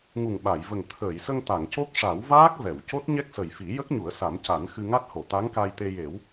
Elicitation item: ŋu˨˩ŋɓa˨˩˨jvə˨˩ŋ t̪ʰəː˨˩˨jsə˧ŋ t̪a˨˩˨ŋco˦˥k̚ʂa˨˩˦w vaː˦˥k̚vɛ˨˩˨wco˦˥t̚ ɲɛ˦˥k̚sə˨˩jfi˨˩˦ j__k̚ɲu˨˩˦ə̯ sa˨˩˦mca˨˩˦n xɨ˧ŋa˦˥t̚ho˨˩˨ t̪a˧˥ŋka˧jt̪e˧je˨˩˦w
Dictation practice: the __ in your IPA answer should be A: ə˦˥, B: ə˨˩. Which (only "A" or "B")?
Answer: A